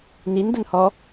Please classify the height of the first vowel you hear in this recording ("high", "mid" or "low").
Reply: high